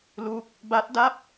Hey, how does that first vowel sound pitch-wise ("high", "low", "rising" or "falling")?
falling